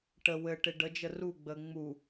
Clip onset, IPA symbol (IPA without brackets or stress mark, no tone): ʈ